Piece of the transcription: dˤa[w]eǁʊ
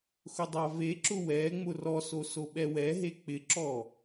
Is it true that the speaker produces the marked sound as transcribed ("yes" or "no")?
no